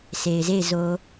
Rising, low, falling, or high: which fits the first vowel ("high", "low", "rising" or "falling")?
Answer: low